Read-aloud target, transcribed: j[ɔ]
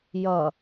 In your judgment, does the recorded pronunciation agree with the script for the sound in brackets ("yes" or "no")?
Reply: no